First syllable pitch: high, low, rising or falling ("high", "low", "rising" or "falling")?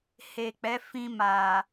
low